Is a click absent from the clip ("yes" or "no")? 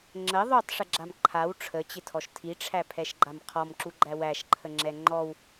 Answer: no